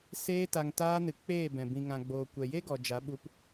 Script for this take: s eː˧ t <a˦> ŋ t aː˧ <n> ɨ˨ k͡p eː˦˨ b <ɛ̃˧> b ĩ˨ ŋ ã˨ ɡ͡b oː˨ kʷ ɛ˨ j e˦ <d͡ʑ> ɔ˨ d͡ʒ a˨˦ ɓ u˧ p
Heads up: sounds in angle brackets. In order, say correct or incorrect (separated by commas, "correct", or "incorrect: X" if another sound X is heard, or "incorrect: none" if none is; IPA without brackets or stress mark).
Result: incorrect: a˨, correct, incorrect: ɛ̃˨, incorrect: ɡ